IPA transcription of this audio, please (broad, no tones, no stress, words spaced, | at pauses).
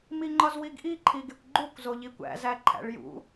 miŋ͡ǃɒzwiɡʔi ǃʰiɡekʷɡ͡ǃukʷ zoʎikʷæ̰ zæǃʰæ̰ɭjṵ